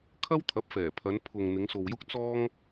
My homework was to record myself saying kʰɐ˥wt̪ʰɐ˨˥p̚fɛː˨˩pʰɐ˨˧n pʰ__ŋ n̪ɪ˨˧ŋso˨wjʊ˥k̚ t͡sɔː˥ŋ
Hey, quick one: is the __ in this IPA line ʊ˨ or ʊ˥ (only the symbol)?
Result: ʊ˨